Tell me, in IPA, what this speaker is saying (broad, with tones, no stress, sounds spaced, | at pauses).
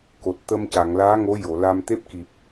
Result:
k o˨˩ t̚ t̪ ə˧ m c a˨˩˨ ŋ l aː˧˥ ŋ o˧˥ j o˨˩˨ l a˧ m t̪ e˦˥ p̚ k i˨˩ p̚